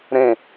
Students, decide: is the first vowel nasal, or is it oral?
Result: nasal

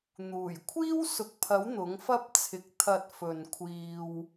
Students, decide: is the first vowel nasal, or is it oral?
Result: oral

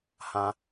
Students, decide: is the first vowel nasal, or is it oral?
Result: nasal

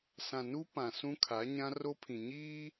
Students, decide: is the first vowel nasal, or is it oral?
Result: nasal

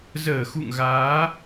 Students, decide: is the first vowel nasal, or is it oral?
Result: oral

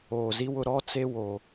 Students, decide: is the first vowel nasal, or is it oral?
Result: oral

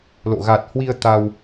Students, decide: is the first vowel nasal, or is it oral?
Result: oral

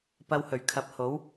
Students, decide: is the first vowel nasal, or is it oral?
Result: oral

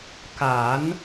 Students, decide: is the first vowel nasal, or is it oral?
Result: oral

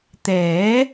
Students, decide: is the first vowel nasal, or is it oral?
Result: oral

